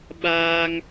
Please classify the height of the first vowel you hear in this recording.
low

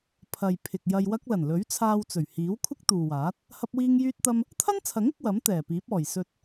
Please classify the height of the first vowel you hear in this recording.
low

